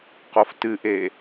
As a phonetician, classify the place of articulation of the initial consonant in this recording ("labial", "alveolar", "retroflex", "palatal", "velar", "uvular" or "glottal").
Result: uvular